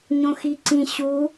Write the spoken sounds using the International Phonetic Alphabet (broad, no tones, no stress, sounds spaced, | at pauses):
ɲ õ x i ǀ ĩ ɕ u